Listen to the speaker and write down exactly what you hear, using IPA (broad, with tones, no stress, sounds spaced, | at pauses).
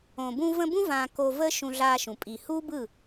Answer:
õ˨ b ũ˧ v ə̃˧ b ũ˦ v ã˧ k o˧ v ə˦ ʃ ũ˧ ɮ a˧ ʃ ũ˨ pʼ i˨ h u˦ b ɯ˦˨